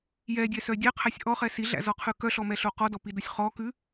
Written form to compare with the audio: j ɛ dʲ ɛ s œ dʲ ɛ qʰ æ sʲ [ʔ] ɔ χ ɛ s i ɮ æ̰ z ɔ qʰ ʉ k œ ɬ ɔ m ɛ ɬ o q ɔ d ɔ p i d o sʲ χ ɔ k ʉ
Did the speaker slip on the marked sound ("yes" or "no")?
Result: no